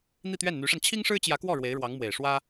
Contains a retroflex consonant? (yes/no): yes